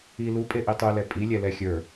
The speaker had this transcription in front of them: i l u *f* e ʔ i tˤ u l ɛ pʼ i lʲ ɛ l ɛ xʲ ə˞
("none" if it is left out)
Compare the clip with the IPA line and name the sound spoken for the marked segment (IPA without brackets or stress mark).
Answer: pʼ